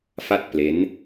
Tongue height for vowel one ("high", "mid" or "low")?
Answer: low